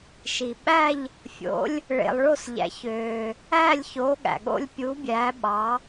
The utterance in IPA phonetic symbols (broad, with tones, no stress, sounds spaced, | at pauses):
ʃ i˩ ɓ æ˥˧ ʎ | fʲ o̰˨˦ lʲ | ɭ ḛ˩ lˠ ɭ o˧˩ s ʎ æ̰˩ ç øː˩ | æː˥˧ lʲ ç oː˨˦ ɠ æ̰˩ ɠ o̰˥˧ lʲ pʲ u˨˦ bʲ æː˨˦ ɓ ɑ˨˦